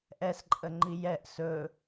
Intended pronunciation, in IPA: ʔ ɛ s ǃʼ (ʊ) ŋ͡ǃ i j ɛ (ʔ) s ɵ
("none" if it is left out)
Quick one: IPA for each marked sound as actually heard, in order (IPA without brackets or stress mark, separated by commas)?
ə, ʔ